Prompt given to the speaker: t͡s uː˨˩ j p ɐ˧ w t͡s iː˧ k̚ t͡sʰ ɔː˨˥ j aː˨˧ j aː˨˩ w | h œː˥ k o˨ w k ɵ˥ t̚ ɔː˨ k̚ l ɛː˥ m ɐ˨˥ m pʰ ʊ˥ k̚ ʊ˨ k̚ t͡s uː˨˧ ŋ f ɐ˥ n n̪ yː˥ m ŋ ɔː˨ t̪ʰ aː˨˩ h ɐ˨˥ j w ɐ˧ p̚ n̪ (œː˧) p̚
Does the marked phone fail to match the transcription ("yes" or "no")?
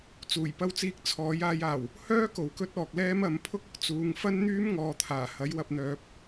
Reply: yes